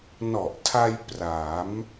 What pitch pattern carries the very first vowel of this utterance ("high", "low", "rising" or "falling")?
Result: low